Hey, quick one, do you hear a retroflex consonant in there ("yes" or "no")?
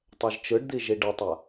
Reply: yes